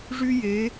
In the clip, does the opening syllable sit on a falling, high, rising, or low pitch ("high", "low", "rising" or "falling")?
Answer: high